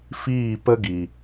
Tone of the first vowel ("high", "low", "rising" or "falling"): falling